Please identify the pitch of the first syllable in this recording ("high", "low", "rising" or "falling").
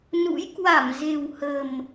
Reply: rising